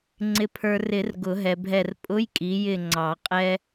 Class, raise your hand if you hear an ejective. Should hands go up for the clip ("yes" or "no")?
yes